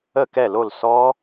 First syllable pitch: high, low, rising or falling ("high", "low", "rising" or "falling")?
falling